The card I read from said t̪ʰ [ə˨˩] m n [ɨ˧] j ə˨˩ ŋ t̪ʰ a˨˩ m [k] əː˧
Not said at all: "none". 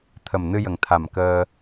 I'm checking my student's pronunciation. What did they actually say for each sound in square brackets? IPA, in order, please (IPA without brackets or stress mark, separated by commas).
ə˨˩, ɨ˧, k